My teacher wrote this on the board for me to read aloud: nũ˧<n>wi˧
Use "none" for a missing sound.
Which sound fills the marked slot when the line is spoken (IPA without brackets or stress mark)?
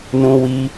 none